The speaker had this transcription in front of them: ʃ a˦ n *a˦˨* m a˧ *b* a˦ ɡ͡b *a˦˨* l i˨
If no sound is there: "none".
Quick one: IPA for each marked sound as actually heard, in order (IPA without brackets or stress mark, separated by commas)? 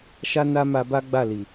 a˦, b, a˦˨